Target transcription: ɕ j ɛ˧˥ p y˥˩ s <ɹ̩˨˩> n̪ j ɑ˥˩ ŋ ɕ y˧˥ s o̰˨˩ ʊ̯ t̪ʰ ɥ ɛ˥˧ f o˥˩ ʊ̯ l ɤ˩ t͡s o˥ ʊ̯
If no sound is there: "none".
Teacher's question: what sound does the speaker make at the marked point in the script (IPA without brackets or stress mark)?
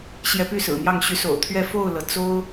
ɹ̩˨˩